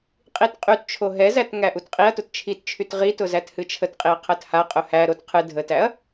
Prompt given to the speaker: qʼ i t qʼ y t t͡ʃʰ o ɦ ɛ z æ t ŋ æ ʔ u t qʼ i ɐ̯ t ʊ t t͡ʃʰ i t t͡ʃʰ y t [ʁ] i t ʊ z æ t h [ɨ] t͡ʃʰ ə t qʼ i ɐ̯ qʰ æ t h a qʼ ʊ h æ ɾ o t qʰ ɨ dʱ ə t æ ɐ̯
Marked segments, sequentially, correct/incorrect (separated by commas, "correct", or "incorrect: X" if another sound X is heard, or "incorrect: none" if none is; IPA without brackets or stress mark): correct, correct